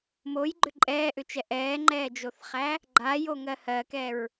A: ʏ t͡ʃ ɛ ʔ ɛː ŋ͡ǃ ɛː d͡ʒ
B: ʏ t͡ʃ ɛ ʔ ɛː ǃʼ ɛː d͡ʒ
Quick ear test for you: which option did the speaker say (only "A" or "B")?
A